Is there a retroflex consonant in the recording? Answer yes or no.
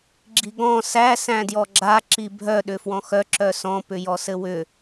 no